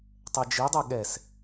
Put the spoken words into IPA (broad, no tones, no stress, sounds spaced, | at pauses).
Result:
tˤ ɛ d͡ʒ i dˤ ɛ ɠ ɛ s